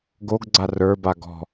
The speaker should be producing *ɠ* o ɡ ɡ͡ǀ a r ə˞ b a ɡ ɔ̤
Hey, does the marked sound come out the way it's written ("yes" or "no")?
no